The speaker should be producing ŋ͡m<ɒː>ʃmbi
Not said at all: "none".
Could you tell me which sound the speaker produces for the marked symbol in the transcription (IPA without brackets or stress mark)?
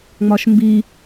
ɒ